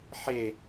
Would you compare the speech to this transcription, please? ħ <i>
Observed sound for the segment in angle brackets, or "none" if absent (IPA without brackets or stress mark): e